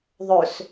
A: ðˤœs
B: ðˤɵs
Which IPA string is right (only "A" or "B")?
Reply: B